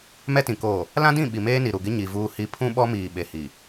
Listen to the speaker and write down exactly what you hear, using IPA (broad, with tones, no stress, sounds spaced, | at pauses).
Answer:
m ɛ˦ t ĩ˨ k oː˨ | l ã˦ d ĩ˦˨ ɓ i˨ m eː˦ n i˨ ɾ u˨ ɡ ɪ˦ ɲ i˨ v uː˦ h i˦ pʰ ũ˦ ɓ ɔ˦ m iː˨ ɓ e˨ h i˨